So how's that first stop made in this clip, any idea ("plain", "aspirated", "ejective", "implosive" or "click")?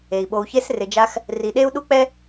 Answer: implosive